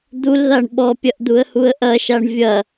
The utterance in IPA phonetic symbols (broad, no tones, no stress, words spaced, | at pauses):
d̪ulðaɳ ɓɔpʲɐʔd̪uə̯huə̯ ʔɐʃaɳ vʲɐ